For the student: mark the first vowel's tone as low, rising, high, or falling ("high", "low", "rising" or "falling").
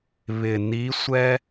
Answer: low